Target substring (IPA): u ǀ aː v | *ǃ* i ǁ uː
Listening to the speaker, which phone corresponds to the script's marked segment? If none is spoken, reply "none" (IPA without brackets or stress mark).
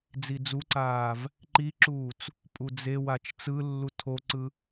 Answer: ǃ